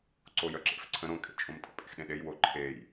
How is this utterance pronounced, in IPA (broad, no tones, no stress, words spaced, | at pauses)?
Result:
ǀojœǁḛfǀʰə̃ ɾõkʼḛt͡ʃʼõmtʼə̰ pʼḛxɗẽɗej woǃʰej